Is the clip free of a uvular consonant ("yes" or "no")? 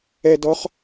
no